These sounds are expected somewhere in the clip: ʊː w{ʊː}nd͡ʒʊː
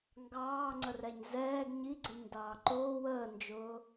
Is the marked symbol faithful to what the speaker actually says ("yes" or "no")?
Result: no